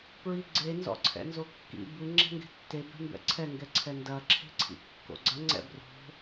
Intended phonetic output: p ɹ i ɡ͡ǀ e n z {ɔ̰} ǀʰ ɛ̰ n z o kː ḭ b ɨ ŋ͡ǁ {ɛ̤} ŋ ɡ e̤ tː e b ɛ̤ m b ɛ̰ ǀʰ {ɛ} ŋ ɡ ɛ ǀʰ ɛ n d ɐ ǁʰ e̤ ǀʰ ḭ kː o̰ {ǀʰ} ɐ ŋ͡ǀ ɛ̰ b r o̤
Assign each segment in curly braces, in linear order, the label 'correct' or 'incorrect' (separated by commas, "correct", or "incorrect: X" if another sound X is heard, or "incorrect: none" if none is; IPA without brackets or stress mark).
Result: correct, correct, correct, incorrect: ɡ͡ǀ